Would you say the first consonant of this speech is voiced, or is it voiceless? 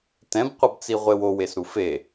voiceless